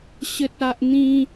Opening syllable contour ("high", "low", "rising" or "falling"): high